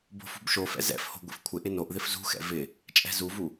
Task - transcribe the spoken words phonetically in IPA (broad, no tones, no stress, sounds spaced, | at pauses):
b o̤ f ṳ b ʃ o f ɛ̰ z ɛ̰ f h o̤ ɡʷ ḭ f kʷʰ ɪ ʔ ɪ n o ʔ ð ɪ f z ṳ x ɛ̰ v ɪ | t͡ʃʼ ɛ̤ z u v u